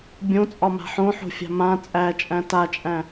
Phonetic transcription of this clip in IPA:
bʲõt͡sʼɒma̤ ħõħo̤fʲa̤ mã t͡sʼæt͡ʃʼæ̃ tat͡ʃʼæ̃

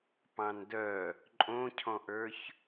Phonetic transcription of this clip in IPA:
pɑ̃ndœ | ǃʼõcʰɔ̃ʔə˞ç

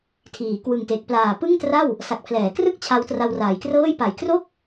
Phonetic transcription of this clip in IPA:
tʰiː˩˦kwɯ˨˩ŋte˨˩k̚ plaː˨˩pɯ˥˩ŋtra˥˩w | sa˨˩k̚pʰlɛː˩˦krɯ˥˩k̚ t͡ɕʰa˦˥wtra˧wraː˩˦jkrɤː˥˩j pa˨˩jkro˥˩k̚

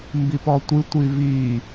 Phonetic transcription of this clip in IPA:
mbipɔtʷɨ tʷivi

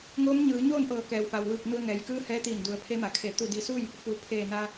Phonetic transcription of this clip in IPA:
ŋoː˧˥mɲɯː˩˧ɲoː˥˨nʔɤː˧˩ kɛː˩wfa˩wʋɯː˧˩k̚ nu˧ə̯ŋɛː˩˧jkɯː˧˥ hɛː˧˥t̪iː˧˩ndu˩˧ə̯ pʰe˧˥ma˩kʰe˧˩ t̪u˧˩di˧˩su˥˨j | fu˩˧ pʰeː˧˩na˧

